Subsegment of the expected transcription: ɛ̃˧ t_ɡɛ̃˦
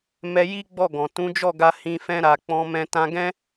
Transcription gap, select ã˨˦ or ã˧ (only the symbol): ã˧